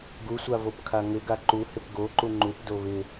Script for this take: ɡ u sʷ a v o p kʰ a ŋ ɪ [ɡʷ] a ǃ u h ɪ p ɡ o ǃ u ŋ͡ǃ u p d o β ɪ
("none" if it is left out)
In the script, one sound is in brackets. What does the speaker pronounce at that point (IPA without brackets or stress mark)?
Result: ɡ